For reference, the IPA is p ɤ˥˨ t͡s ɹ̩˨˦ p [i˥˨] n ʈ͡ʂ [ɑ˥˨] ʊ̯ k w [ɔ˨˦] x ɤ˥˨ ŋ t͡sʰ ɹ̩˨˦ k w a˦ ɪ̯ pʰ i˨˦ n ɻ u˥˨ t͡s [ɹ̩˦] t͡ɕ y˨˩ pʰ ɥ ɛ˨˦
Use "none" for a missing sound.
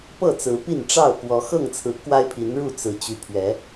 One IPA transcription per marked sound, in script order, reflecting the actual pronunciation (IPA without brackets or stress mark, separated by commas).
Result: i˥˨, ɑ˥˨, ɔ˨˦, ɹ̩˨˦